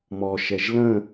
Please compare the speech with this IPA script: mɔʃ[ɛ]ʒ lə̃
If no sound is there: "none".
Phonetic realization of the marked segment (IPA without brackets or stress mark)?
ɛ